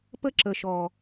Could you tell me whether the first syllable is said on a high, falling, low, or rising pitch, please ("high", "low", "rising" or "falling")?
high